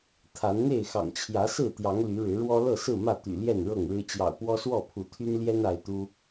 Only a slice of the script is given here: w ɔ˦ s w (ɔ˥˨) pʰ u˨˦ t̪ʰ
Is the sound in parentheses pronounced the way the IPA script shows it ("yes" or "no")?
yes